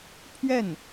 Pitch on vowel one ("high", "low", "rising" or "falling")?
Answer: falling